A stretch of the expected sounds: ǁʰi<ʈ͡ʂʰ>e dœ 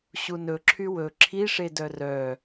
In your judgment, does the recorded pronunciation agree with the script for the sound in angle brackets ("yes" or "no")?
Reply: no